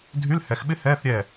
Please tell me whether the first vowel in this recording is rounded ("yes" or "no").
yes